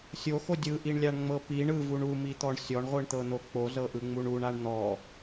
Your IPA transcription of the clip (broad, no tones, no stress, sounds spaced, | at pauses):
sʲ o x o dʲ ɯ ʔ i ɳ lʲ a ɳ ŋ͡m ɤ p i ɳ ɯ v u ɳ u m i t̪ ɔ ɳ sʲ ɔ ɳ ʁʷ ɯ ɳ t̪ ɤ n̪ o k͡p o z ɤ ʔ ɯ ŋ͡m u ɳ u ɳ a ɳ n̪ ɔ